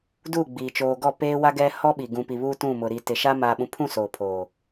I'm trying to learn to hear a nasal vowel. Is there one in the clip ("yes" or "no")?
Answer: yes